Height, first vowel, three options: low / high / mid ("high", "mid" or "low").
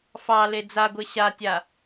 low